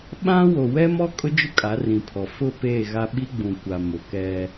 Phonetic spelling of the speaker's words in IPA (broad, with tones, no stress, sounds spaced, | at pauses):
ɓ ã˦ w o˨ w ɛ˦ m ɔ˦ kʼ ʊ˦ d͡ʒ ʊ˦ kʼ a˨˦ r ĩ˨ pʰ ɔ˨ f ʊ˦˨ p eː˦˨ ɣ a˦ ɓ i˦ ɡ͡b ũ˨ kʷ a˨ m ʊ˨ k ɛ˦